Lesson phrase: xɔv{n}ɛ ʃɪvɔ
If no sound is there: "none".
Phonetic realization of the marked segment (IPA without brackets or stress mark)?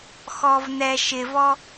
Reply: n